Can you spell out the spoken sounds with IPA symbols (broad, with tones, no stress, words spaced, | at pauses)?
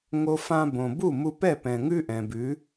ŋo˧fã˧bõ˨ bu˦˨mu˧pɛ˦˨ pɛ̃˨ŋʉ˦ʔɛ̃˨bʉ˨˦